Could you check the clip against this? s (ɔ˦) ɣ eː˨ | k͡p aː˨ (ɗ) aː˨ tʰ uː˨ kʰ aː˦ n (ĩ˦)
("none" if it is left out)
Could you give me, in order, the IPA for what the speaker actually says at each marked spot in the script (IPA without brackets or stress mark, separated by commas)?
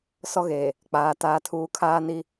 ɔ˦, t, i˦